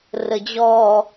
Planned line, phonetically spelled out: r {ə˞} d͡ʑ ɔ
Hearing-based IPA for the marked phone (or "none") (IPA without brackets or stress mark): ə